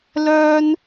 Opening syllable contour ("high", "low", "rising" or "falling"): high